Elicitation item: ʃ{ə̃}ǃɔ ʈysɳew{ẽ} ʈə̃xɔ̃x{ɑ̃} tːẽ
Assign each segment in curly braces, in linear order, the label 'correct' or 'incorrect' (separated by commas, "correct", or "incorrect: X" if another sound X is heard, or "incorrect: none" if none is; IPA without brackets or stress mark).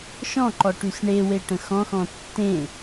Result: incorrect: ɔ̃, incorrect: e, incorrect: ɔ̃